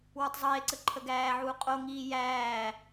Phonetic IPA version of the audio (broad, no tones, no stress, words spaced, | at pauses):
wutˤzˤiːe̯ǀə ǃʰəɡæːʕuː qʼoŋiː jæː